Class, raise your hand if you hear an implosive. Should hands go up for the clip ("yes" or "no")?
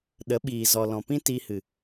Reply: yes